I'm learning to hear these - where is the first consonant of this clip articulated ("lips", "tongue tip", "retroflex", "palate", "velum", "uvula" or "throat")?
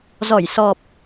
tongue tip